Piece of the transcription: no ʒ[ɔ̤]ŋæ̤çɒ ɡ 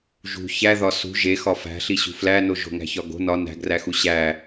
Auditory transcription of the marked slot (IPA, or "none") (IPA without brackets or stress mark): o̤